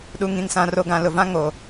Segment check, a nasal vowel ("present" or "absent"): present